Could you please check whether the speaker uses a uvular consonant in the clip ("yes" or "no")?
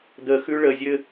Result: no